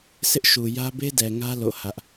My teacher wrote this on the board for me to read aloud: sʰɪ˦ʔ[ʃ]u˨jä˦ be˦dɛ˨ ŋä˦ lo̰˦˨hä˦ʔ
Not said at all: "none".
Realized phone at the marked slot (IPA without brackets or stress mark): ʃ